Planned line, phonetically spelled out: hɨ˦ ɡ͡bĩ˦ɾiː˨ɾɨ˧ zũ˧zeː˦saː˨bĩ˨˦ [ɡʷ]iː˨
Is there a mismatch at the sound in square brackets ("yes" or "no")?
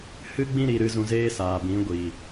no